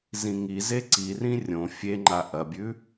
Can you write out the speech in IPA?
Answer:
z ĩ ŋ i z e ǀ i r ĩ rʲ õ fʲ e ŋ͡ǃ a ʔ ɐ bʲ ʉ

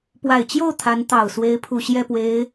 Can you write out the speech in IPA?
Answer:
p w a˨˩ ɪ̯ t͡ɕ j o˥˩ ʊ̯ t̪ʰ a˧˥ n t̪ ɑ˨˩ ʊ̯ s w e˧˥ ɪ̯ pʰ u˨˩ ɕ j ɛ˥˩ p w e˧˥ ɪ̯

